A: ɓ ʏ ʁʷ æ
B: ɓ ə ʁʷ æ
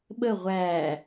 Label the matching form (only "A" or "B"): B